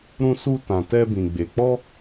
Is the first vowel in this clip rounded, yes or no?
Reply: yes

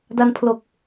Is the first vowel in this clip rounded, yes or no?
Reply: no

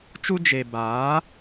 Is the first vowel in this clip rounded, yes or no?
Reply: yes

